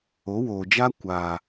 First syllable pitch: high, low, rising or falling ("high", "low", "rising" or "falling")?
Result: rising